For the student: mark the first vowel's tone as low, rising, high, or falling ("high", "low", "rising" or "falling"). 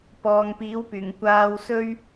low